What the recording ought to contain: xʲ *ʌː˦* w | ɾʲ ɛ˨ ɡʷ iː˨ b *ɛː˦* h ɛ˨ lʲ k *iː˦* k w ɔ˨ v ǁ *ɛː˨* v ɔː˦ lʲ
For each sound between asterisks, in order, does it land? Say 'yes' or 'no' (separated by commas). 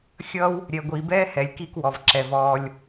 yes, yes, no, no